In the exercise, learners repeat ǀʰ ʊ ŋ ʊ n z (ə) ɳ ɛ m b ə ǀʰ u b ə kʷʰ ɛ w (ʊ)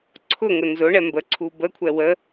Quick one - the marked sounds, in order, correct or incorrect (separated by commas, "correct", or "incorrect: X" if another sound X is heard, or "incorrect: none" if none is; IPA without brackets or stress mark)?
incorrect: ʊ, incorrect: ə